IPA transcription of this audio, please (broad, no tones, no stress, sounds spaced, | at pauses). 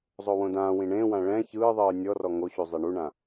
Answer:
zˤ o w õ d ãː w ĩ ɳ ẽː w ã ɭ ɛ̃ ç ɯː ðˤ ɯː nʲ ɔ r ɔ ŋ o ɕ u zˤ e ɳ u ɳ ã